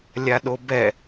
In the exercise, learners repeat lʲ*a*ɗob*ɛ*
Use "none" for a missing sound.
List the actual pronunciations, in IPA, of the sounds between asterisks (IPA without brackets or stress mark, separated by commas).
a, ɛ